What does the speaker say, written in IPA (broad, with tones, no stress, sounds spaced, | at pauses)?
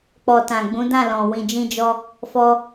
k͡p ɔ˨ t ã˨ ɡ͡b ũ˨˦ d ã˦˨ l ɔ̃˨ w ĩ˨ d͡ʒ ĩ˧ d͡ʒ ɔ˧ | f ɔ˧